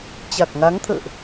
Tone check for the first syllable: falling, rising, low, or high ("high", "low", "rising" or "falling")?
low